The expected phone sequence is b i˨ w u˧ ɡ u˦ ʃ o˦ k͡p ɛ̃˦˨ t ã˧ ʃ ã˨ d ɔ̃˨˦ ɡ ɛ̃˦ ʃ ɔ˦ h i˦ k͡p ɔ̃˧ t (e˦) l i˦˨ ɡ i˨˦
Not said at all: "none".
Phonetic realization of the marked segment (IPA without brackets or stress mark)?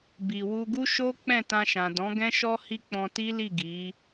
i˦